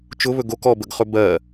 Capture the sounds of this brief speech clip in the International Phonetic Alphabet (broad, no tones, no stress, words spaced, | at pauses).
t͡ʃʊβɵ ɡok ɔbəɡχɵ bɜ